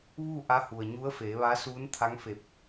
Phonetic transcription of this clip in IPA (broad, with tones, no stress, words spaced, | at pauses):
ʋuː˥˨ʔa˧˥hu˩ə̯ ɲu˧˥ə̯feː˩˧ʋa˧˥ suː˧˥nt̪ʰa˧˥ŋfe˧˩p̚